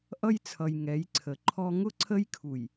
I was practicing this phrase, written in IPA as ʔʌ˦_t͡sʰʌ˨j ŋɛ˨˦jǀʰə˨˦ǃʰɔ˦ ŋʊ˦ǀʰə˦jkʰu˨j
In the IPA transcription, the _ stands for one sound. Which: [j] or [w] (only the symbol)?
j